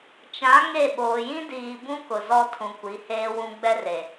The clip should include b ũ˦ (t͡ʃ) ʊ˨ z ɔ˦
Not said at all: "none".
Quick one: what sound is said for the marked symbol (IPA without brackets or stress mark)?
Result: k